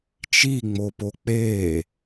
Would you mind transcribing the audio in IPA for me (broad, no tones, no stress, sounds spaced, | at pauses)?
t͡ʃ i ŋ͡m o p o k͡p e